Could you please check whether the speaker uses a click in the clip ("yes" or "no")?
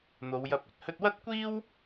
no